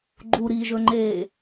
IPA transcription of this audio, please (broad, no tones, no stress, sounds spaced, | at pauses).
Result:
ɡ͡ǃ u ɾ iː ʒ ɵ ŋ͡ǃ eː